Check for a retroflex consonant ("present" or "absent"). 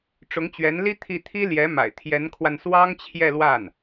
present